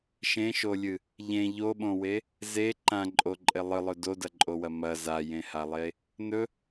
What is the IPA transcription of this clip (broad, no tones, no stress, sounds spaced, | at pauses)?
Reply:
ʃ ẽ ʃ o lʲ ɨ | ʎ ẽ ʎ o ɓ õ w e | z e ǃ ã ǃʼ o ǃʼ e lˠ ɨ lˠ ɵ d o d ɐ ǃʼ o w ɐ m ɐ z a j ẽ h a lˠ e | n ɵ